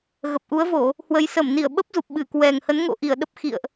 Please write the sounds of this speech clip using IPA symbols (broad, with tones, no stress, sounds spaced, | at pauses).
ɣ ə˨˩ p̚ ʔ u˨˦ ə̯ v o˧˩˨ | h w ə˨˦ j s ə˧˩ m n i˧˩ ə̯ ɓ ə˦˥ p̚ z u˨˩ p̚ ɓ ɨ˧˩ k w ɛ˨˩ ŋ h ə˨˦ n ŋ o̰˧˨ ʔ i˧˩ ə̯ ɗ ə˦˥ p̚ x ḭ˧˨ ə̯ ʔ